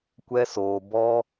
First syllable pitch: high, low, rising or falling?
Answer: high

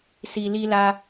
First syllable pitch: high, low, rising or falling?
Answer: low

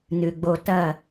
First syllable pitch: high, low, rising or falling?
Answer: low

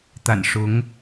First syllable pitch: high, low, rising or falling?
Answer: low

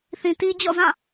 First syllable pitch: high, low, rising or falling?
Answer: low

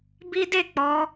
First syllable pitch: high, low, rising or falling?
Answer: high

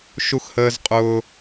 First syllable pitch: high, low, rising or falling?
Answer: high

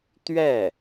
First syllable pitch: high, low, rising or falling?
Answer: falling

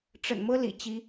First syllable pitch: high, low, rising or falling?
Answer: low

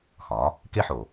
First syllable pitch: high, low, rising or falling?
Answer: rising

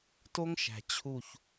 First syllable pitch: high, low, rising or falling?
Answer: high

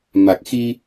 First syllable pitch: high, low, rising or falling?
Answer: low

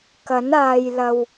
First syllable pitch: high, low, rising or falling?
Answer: rising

